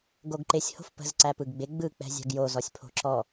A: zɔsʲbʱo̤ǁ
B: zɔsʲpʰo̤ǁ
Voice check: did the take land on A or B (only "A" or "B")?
B